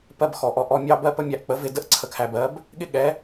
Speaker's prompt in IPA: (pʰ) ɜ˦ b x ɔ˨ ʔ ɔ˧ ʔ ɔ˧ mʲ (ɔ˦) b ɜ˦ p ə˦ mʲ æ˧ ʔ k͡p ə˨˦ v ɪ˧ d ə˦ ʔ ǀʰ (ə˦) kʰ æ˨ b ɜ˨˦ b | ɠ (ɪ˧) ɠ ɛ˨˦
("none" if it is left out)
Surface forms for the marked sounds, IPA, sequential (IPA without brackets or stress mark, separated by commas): p, ɑ˦, ə˧, ɪ˦